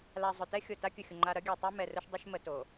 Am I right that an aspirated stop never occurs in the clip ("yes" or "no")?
yes